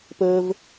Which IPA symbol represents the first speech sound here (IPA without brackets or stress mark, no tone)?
p